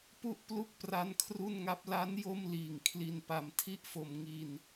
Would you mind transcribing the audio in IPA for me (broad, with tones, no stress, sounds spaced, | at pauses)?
p u˥˩ ʔ p l u˥˩ k̚ p r a˦˥ n kʰ r u˥˩ n ŋ a˦˥ p̚ l a˦˥ n j o˥˩ m l iː˨˩ ŋ kʰ l i˧ n p a˧ m tʰ i˥˩ ʔ f o˧ m ŋ i˧ n